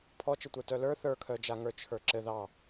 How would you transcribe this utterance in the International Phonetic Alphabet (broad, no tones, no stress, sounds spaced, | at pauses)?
pʰ ɔ t͡ʃ ɘ tʷ ə˞ t œ l ə˞ θ ə˞ kʰ œ d͡ʒ a ŋ ə˞ t͡ʃʰ ə˞ ǁ ɘ ð ɑ